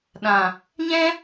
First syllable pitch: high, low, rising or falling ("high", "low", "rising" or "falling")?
low